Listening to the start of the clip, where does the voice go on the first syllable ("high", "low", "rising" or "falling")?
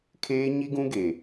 high